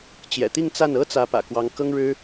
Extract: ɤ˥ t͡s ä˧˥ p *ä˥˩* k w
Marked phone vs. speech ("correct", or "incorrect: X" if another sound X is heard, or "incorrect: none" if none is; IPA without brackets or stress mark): incorrect: ä̰˨˩